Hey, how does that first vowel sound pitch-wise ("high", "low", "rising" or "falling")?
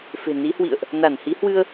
low